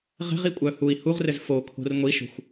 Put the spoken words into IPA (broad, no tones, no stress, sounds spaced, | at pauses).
ʁ ɛ̤ ʁ i kʷʼ œ h u i̯ h u ʁ r ɘ z f o kʰ o̤ r ŋʷ i ʃ o̤ xʷ